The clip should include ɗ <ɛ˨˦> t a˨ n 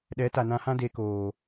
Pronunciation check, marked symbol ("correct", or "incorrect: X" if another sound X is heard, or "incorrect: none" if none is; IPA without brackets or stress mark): correct